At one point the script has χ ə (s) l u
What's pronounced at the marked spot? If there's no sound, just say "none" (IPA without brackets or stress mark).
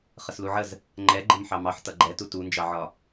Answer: s